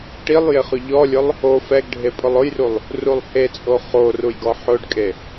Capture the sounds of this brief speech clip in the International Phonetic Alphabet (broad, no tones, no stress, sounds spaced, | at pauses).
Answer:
ʈ i lˠ j ɪ χ ʊ ʎ ɔ lʲ ʊ lˠ | o f ɛ ɡ ɖʱ e pʼ ʊ lˠ ʊ j r u lˠ | r u lˠ h e t͡sʼ o χ o r u j ɡ ɔ ħ ʊ ɖ kʼ e